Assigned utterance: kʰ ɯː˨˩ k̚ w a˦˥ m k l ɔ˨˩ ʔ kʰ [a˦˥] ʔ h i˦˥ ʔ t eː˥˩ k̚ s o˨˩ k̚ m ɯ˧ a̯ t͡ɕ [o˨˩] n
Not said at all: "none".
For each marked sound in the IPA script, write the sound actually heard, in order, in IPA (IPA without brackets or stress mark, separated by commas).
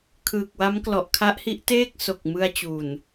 a˦˥, u˨˩